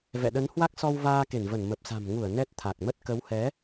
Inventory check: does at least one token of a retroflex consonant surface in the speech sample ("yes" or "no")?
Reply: no